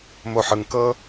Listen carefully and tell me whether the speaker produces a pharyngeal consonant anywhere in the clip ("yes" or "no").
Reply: yes